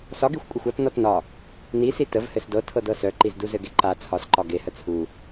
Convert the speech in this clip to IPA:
s ɒ ɡ i xʷ kʷʼ e xʷ ɒ t n ɔ t n ɒ | n i s i t ə v h ɘ s d ɤ tʰ ɤ d ɤ s œ ǃ i z d u z ɘ ɡ e ǃ a t͡sʰ ɒ s ǃ ɒ ɡ e h ə t͡sʰ u

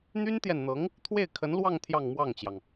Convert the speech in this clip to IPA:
n̪ y˥ n t̪ j ɛ˨ n n̪ ɤ˧˥ ŋ | t̪ʰ w e˥˩ ɪ̯ kʰ ə˧˥ n l w ɑ˥˧ ŋ t̪ʰ j ɑ˥˧ ŋ m w ɑ˥˩ ŋ t͡ɕ j ɑ˩ ŋ

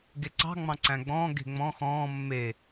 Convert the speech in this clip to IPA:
ɡ e ǀ ɑ̤ ŋ͡m ɑ̃ ǀ æ̃ ɡ͡b ɔ̃ː ɡ e̤ ŋ͡m ɔ̃ x ɔ̃ː mː e

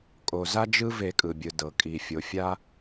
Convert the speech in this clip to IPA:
kʼ o˩ z a˦ d͡ʒ ɯ˦ v e˨˩˦ kʼ ɯ˩ bʲ ɯ˩ d ɤ˩ kʼ i˩ fʲ o˩ fʲ a˦

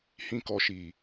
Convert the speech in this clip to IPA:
h ĩ˨ k ɔ˨ ʃ iː˨

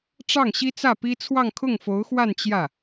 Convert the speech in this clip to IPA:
ʈ͡ʂ ɑ˥˩ ŋ ɕ i˥ t͡s ä˥˩ p i˥ t͡sʰ w ɑ˥˧ ŋ kʰ ʊ˥˩ ŋ f o˧˥ ʊ̯ x w a˥˧ n t͡ɕ j ä˥˩

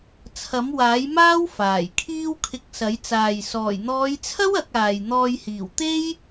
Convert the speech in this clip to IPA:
t͡sʰ ɐ˨˥ m w aː˨˥ j m aː˥ w f aː˨˩ j kʰ iː˥ w kʰ ɪ˧ k̚ s ɐ˨˥ j t͡s aː˨ j s ɔː˨˩ j n̪ ɔː˨˧ j t͡sʰ ɐ˥ w ɐ˨˥ k̚ aː˨ j n̪ ɔː˧ j h iː˨˩ w t̪ e˥ j

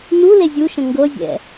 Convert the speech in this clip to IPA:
n u l e zʲ u ʃ ə̃ ŋ ɡ ɤ zʲ ɛ̰

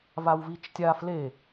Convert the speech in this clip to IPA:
v a w v i t͡ʃ tʲ a f l e

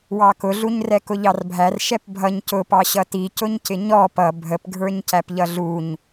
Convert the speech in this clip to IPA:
w ɑ k ʊ ɮ u ɲ r ɛ k ʊ ʎ ɑ r bʱ æ r ʃ ɛ p bʱ ʌ ɲ c ʊ p ɑ ɕ ʌ t i c ʊ ɲ c ɪ ɲ ɔ p ʌ bʱ ə p ɡʱ ə˞ ɲ c æ p ʎ ʌ ɮ u ɲ

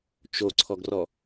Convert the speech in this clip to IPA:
t͡ʃ o ǀʰ ɔ ɡ r ɔ

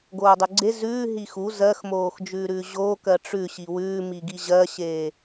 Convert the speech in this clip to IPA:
ɡ oː dˤ ʉ ɡ͡ǀ e z ʉː ɦ i x u z ɜ x m oː x d͡ʒ ʉː ɾ ʉː ʑ oː k ɜ ʈ͡ʂ ʉ ɕ i w ʉː m i ɡ i ʑ ɜ ɕ eː

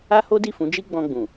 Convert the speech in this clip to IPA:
a˦ h o˦ d i˦˨ f ũ˨˦ d͡ʒ i˦ ɡ͡b ɔ̃˧ ɡ͡b ũ˨

